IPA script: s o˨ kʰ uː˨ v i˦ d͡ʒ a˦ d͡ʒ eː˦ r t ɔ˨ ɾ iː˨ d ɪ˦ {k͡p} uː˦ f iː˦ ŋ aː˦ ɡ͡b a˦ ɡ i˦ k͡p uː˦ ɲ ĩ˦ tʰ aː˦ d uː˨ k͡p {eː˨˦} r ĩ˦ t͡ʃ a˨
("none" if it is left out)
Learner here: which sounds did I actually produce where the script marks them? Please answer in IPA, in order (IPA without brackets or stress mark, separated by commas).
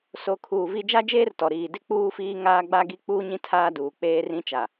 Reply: k͡p, eː˦